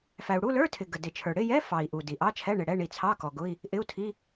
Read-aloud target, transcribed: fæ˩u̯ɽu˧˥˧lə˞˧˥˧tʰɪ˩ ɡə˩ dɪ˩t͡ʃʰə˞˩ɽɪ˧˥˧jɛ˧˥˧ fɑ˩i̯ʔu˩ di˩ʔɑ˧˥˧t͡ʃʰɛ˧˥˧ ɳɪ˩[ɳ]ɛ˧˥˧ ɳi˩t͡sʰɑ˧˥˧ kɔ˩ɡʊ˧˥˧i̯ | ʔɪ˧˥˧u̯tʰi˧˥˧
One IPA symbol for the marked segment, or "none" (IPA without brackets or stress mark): ɽ